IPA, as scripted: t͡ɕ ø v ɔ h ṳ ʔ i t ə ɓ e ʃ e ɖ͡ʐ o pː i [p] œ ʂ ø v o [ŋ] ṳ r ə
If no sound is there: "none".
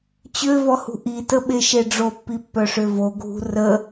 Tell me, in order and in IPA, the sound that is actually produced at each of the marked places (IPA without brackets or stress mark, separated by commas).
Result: pː, ɡʱ